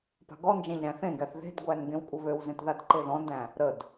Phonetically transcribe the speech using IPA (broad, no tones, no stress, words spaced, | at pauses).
pa̤ɡɔnd͡ʒæ̃ʎ ɾæ̃θẽɡæθ ðe̤dɡʷæn ɡẽwkʷʼəβøwzẽt ðadǃeðɔ̃ndæ̃ | ɾəd